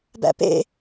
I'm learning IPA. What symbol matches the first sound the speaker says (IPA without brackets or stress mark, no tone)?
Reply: b